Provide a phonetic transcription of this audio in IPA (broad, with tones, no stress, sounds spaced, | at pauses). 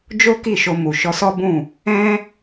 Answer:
d͡ʒ o˦ k i˦˨ ʃ o˧ m u˨ ʃ ɔ˧ s ɔ˦ b ũ˦˨ | ɛ̃˦